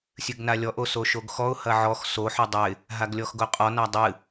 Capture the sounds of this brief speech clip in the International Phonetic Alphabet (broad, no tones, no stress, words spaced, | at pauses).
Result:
sʲɨɡnalʲɔʔ osoʃoɡxɔʊ̯ hɐʕɔx so ħɔdˤɐɪ̯ | ɦaɡlʲɔxɡoqʼɔ nadˤɨ